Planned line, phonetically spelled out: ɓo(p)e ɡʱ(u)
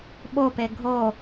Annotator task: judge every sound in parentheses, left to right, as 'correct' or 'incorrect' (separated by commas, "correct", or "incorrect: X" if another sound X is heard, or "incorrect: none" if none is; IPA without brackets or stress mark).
correct, incorrect: o